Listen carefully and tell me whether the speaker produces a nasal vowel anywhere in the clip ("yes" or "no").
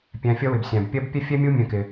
yes